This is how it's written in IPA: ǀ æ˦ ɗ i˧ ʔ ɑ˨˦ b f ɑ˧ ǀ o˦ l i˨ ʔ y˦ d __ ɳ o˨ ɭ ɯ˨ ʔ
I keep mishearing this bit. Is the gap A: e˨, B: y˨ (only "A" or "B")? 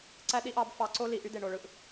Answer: A